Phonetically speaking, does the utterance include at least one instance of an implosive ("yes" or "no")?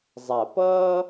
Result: no